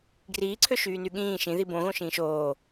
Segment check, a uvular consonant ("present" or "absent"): absent